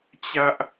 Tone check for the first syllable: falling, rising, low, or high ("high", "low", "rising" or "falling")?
high